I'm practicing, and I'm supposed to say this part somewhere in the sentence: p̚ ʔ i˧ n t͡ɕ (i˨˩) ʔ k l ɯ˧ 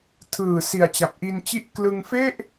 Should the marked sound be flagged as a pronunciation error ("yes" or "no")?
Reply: yes